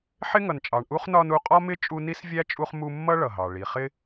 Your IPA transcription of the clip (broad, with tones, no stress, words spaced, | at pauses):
ħɪ˥ŋʌ˨nt͡ʃʼɑ˨ɳ ʔu˥χnɒ˦n u˦qʼɒ˥mɪ˥ t͡ʃʼu˦ni˥svʲæ˥t͡ʃʼu˦χ mu˦mːʌ˥ ɭʌ˩ɦɑ˩ ɭi˩χɪ˦